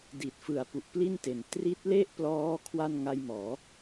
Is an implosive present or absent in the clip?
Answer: absent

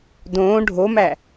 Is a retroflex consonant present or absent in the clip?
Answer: present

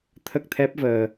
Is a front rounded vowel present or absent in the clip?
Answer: absent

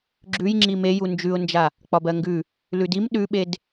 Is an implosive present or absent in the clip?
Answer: present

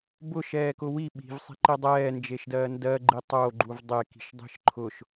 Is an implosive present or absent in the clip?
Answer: present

